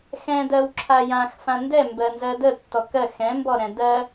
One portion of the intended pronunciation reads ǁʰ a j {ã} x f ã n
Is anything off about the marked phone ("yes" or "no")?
no